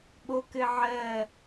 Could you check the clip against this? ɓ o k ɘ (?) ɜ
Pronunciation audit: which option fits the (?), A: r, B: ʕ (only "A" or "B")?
B